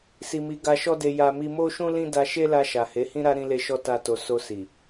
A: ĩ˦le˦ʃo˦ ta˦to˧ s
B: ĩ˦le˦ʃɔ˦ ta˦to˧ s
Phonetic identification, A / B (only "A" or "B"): B